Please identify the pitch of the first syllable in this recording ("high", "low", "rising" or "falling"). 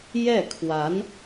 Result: falling